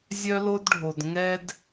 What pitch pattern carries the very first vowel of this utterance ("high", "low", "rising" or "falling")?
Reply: high